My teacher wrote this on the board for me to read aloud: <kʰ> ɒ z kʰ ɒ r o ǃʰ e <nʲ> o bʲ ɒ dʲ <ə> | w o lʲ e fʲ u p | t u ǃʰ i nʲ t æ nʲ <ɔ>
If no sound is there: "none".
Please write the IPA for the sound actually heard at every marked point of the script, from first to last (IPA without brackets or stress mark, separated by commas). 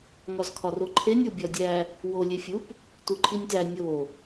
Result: ŋ, nʲ, æ, o